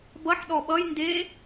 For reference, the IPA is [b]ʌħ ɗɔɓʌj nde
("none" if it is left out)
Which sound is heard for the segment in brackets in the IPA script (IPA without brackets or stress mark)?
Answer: b